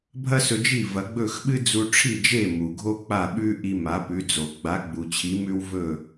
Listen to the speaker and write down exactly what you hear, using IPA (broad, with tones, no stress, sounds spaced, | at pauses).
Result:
bʱ ɐ˥ s ɵ˧ d͡ʒ i˥˩ v ɐ˩˥ ɡ͡b ɵ˥˩ x ɓ ɨ˥ d͡z u˧ ʈ͡ʂʰ i˥˩ d͡ʒ e˥˩ m u˩ ɡʱ o˥ k͡p a˥˩ ɓ ʉ˥ ʔ i˧ m a˩˥ p ʉ˩˥ d͡z o˩ ɡ͡b a˩˥ ɡ͡b u˩ t͡ɕʰ i˩˥ m ʉ˧ w v ɵ˥˩